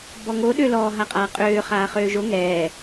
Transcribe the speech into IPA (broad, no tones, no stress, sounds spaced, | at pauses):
b ɔ ŋ o ɗ ø l ɔ ɦ a qʼ aː qʼ øː χ aː χ øː ʒ o ŋ ɛː